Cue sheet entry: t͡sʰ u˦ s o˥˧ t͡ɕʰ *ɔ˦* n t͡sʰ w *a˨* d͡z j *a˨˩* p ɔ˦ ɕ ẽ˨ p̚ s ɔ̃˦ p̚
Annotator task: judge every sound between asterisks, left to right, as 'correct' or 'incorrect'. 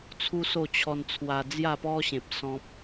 incorrect: ɔ˧, incorrect: a˧, incorrect: a˥˧

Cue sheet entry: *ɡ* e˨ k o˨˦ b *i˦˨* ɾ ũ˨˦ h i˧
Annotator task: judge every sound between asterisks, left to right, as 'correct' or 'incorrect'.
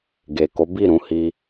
correct, correct

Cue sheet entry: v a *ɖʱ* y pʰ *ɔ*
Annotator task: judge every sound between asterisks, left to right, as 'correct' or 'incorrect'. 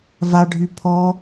correct, correct

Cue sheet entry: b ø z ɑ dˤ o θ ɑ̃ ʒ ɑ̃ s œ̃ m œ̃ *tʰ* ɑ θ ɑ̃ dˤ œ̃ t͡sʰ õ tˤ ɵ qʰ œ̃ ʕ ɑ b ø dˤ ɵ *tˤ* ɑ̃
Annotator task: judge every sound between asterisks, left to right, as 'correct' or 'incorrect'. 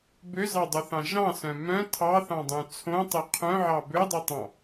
correct, correct

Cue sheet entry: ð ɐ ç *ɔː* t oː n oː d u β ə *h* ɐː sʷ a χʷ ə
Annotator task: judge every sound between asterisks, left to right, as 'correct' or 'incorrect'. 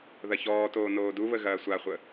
correct, incorrect: ɣ

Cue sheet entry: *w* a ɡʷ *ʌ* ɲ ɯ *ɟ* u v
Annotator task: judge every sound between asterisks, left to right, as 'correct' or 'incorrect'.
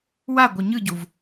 correct, correct, correct

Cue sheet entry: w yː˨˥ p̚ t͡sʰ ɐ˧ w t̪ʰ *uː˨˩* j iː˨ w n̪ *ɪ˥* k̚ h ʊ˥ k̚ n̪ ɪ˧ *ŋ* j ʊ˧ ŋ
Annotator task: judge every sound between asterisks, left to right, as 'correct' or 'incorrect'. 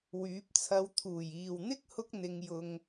correct, correct, correct

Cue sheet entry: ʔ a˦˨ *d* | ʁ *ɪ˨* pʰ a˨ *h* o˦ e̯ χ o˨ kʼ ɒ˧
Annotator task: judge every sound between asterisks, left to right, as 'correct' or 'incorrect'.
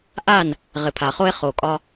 incorrect: n, correct, incorrect: χ

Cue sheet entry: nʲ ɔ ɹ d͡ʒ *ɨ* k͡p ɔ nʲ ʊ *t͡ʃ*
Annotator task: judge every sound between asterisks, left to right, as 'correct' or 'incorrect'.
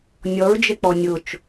incorrect: e, correct

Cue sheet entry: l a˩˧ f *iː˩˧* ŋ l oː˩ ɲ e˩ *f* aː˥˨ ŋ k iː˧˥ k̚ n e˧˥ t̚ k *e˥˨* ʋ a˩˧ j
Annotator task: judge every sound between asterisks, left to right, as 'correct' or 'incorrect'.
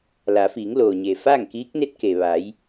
correct, correct, incorrect: e˩

